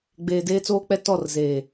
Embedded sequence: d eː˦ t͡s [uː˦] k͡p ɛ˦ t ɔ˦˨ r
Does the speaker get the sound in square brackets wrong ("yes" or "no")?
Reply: yes